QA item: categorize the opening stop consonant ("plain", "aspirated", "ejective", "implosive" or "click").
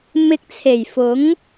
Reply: plain